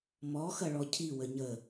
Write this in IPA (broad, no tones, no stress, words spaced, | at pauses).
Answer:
mɔxɐ ɭɔcʰiwə ɲə